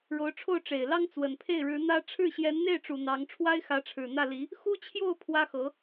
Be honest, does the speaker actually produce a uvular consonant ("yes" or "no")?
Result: no